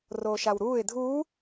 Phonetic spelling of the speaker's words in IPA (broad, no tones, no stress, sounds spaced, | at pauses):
r oː ʃ a w ɾ uː ɪ̯ dʱ uː